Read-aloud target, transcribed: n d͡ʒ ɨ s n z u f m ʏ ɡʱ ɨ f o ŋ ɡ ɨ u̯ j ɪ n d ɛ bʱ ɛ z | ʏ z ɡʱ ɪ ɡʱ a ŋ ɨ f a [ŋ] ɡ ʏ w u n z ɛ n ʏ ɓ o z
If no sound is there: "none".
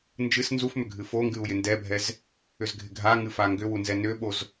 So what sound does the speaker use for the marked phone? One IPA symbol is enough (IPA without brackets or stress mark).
ŋ